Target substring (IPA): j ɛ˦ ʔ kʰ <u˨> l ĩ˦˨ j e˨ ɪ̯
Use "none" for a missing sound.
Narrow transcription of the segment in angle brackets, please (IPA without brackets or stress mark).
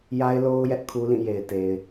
u˦